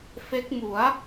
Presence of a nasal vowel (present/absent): absent